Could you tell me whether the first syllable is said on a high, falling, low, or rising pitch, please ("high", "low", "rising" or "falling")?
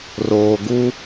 low